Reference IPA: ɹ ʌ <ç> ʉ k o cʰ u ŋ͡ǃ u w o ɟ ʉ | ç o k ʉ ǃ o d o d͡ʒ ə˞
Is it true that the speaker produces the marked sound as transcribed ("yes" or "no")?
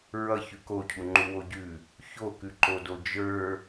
yes